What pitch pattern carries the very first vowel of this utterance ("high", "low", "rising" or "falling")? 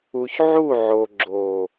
low